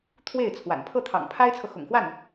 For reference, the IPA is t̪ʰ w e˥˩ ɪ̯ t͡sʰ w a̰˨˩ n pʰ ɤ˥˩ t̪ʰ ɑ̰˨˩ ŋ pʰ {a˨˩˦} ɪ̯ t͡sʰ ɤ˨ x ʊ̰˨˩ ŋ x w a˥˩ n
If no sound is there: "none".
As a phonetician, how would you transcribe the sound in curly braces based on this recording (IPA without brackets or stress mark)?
a˥